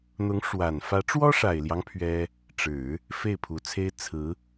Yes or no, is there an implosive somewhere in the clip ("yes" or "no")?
no